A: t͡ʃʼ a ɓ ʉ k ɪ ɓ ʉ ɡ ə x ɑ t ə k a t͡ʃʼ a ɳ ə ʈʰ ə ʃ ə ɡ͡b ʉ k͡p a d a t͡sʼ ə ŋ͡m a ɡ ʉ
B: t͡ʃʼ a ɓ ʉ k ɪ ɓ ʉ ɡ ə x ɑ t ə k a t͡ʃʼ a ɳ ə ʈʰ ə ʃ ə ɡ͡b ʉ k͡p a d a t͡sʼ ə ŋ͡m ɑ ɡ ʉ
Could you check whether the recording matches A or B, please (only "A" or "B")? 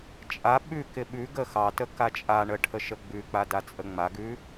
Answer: A